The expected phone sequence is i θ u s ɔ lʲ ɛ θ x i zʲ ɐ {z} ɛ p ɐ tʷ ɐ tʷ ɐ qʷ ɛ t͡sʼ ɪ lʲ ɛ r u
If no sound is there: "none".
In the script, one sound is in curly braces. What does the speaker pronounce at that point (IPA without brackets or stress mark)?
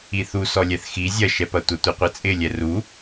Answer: ʃ